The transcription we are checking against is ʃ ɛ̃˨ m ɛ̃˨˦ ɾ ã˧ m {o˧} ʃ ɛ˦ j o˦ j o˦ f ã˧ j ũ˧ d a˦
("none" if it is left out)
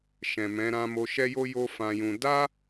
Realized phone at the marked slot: o˧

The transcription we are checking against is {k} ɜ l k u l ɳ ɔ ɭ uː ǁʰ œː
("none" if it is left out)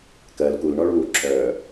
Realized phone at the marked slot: k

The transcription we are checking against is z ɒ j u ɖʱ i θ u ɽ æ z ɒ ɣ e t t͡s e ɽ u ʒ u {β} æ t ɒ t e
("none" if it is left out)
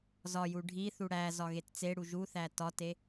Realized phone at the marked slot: θ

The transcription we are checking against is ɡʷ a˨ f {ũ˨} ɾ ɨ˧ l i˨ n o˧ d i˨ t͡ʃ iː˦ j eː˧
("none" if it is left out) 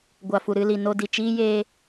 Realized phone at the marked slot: u˨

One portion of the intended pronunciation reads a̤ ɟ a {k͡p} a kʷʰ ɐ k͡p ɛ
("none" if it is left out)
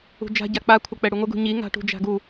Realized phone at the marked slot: k͡p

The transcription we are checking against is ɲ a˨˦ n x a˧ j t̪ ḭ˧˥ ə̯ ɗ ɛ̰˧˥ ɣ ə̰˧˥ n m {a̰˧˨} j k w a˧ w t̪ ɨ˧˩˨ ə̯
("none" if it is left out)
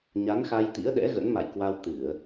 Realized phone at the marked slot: a̰˧˨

